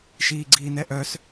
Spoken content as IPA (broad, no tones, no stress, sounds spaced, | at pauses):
ʃ iː ɡ͡ǀ iː n ɛ ʔ œ s